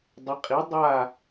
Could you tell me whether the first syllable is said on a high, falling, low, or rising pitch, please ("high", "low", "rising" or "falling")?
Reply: rising